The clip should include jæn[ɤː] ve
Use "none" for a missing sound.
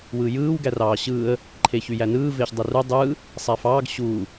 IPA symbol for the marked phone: ɯː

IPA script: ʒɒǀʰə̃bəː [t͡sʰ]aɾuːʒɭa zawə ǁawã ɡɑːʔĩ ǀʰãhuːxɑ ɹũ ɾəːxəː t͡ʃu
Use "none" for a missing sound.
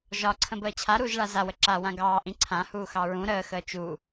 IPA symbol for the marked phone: t͡ɕʰ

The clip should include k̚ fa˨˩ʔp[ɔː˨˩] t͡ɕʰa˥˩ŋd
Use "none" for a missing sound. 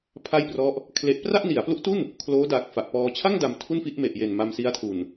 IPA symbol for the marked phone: ɔː˧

